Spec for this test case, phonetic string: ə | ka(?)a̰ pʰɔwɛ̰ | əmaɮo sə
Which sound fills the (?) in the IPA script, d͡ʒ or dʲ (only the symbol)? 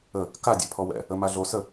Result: dʲ